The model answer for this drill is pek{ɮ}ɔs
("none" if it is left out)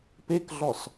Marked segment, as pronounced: ɮ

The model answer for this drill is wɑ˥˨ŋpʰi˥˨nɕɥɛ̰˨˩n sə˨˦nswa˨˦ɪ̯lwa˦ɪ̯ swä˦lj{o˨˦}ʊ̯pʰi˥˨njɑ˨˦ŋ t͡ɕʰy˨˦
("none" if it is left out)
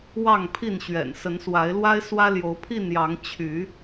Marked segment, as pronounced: o˨˦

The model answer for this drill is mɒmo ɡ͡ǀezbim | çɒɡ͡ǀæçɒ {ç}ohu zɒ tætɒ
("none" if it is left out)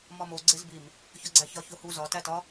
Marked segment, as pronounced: ç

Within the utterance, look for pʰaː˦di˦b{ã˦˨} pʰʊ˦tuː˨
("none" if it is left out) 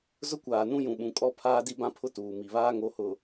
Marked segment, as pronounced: ã˦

